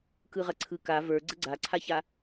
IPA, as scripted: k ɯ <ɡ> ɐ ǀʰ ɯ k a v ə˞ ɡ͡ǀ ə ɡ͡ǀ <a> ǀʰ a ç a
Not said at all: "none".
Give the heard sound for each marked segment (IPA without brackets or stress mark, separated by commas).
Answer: ʁ, a